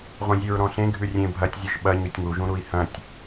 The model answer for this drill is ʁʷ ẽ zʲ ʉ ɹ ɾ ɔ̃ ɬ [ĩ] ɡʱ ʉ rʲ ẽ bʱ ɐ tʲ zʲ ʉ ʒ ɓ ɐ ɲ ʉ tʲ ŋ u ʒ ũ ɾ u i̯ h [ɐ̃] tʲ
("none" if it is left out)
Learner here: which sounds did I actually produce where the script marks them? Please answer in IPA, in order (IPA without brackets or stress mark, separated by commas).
ẽ, ɐ̃